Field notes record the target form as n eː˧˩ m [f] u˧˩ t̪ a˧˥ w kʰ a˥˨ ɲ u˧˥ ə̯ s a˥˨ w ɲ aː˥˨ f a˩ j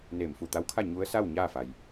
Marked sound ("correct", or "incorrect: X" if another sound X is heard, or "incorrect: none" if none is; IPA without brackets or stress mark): correct